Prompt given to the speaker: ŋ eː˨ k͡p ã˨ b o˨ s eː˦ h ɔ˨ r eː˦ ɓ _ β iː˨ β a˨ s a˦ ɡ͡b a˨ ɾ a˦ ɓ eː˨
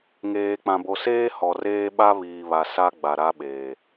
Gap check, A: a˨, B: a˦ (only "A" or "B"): B